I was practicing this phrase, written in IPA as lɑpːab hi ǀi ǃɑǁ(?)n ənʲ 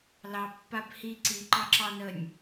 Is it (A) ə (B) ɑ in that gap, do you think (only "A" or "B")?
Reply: B